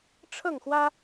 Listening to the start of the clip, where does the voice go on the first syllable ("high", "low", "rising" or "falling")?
falling